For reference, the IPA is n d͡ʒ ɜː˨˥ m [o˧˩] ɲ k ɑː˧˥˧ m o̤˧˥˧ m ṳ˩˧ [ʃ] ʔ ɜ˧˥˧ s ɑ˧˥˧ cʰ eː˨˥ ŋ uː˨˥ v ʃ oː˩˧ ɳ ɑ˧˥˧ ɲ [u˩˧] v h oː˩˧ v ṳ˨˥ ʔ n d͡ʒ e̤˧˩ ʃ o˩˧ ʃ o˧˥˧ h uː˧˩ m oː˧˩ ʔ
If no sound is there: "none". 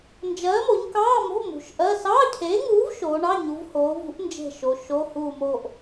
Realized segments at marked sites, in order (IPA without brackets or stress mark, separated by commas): o˩˧, ʃ, u˩˧